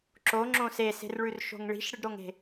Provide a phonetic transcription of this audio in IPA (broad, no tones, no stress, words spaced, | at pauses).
ǁoŋ͡ǁõ sese̤rɭʉrʃo̤ŋ ɭi̤ʃɽɨɖɾoŋe̤